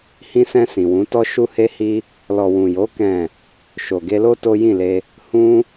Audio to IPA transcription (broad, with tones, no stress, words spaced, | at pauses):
hĩ˧sɛ̃˧ sĩ˨wũ˨˦tɔ˦ ʃu˦he˦hi˦ | lɔ˨wũ˨jo˨˦ kɛ̃˦˨ | ʃo˨ɡe˧lo˦ to˦jĩ˦˨le˧ | hũ˧